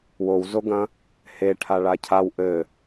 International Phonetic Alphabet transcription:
wowzoɡɐ̃ | heʈʰaɭa cʰaw ʔɘ

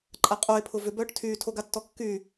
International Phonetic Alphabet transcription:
ǃʼaqʼoe̯pʰʊ vʏbœːʈ tʰyːtʰoɡatːɔ kːy

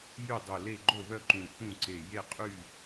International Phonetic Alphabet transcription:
jy˥˨dˤo˧˩le˥˨ ɡ͡ǃo˥˨βœ˥˨ǃũ˧˩ θũ˥˨ǀe˧˩ je˥˨qʼy˥˨

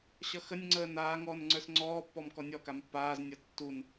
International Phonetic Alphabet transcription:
ɕʌxənʲŋ͡ǀəː naː ŋɔːnŋ͡ǀə˞sŋ͡ǀɔːpːɔm kɔnʲɔkam pːaːznʲʌ tːun

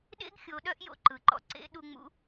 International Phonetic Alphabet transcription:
ɗḛ˥ɡxʲo˩˧ ɗœ˥ʔjo̰˧ǃɯ˩ǃɔ̰˧ ǀḛ˧˥ ɗu˧ŋ͡mṵ˧˥

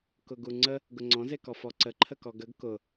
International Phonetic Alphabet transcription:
kʊɡuŋ͡ǀə | ɡʊŋ͡ǀɔ̃ zekɔfɔǀə ǃʰəkɔɡəɡ kʊ

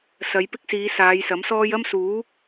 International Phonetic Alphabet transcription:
sɐ˨˧j pɪ˥k̚siː˨˧ saː˨˧jsɐ˨˥msɔː˥j ɐ˥msuː˨˥

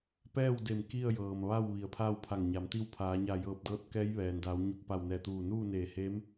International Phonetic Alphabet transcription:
pɛː˥˨wde˧˩m ki˥˨ə̯jɤː˩mʋa˥˨w ʋi˩˧ə̯pʰaː˥˨wpʰa˧˩ŋɲa˩˧m t̪i˧wpʰaː˩˧ɲa˧˩ jɤː˧˩p̚dɤː˧˥t̚kɛː˧˥j ʋɛː˩n daː˩˧wɲu˧˩k̚pa˧˩w nɛː˧˩t̪uː˧˩ nuː˥˨neː˧˩heː˧˥m

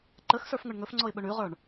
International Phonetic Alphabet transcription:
ǃəxsə˞fŋɵɳ ŋɵfŋ͡ǀɔɪ̯ɓɵ ɳʉʁə˞ɳ

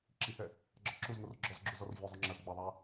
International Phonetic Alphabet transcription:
ǁihɛ | ɡ͡ǁɒǁuzŋor ɡ͡ǁɔzɡ͡ǁu zɔrvʲɒzˤo ŋ͡ǁɐz ɡ͡bɐðˤa

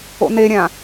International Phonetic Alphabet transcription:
o̰neɾʲã

